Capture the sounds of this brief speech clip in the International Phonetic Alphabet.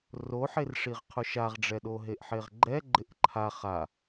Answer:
r o ħ e r ʂ i ʁ qʰ ʊ ʃ a ʁ ɖ͡ʐ ɛ ɗ o ɦ e ʔ ħ e ʁ ɡ͡ǃ ɛ ɡ͡ǃ ɪ ʔ ǃʰ a χ a

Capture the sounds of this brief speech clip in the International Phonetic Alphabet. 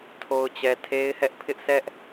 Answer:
tʰ o˨ ʊ̯ t͡ɕ ɛ˨ tʰ e˦ ɪ̯ h ɛ˦ ʔ pʰ ɪ˦ ʔ sʰ ɛ˦ ʔ

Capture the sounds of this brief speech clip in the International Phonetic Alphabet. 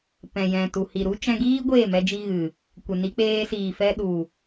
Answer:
p ɛ̃˨ j ɛ̃˨ t u˨ h i˨ ɾ u˦ t͡ʃ ɛ̃˧ ɡ iː˦ ɡʷ eː˦˨ m ɛ˧ d͡ʒ i˧ ɣ ɨ˨ | kʷ ɛ˨ n i˧ k͡p eː˧ s iː˨ f ɛ˧ ɗ u˨

